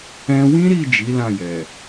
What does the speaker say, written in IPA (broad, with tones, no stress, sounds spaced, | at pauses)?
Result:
ɛ̃˧ w ĩ˦ ɾ i˦˨ d͡ʒ i˨˦ l ã˦˨ j ɛ˨